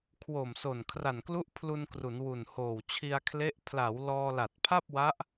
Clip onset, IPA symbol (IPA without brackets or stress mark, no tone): kʰ